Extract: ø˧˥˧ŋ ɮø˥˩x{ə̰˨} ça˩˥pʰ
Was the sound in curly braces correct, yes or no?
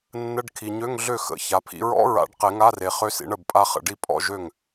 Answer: no